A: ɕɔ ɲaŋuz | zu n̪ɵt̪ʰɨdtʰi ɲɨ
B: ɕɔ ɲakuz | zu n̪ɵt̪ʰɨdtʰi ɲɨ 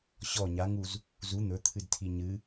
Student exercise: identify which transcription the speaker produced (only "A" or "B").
A